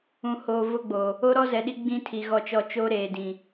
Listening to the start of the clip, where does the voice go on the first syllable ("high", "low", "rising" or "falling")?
low